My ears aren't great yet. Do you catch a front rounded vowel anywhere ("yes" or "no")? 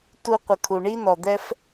no